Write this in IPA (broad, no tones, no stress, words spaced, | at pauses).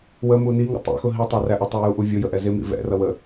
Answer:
wəmu niŋə̰ tˤɛ̰xʊ ɦitˤɑræʔʌ tˤujuʔuvʲʊ jəʔɛzɪmḭ vɛ̰rʌ wə